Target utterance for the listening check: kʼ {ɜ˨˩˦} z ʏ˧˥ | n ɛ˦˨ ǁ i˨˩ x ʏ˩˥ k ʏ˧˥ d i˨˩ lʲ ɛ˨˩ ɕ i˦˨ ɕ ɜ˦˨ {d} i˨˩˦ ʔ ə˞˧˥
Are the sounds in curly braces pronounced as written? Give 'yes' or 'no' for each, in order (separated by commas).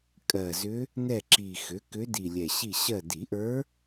no, yes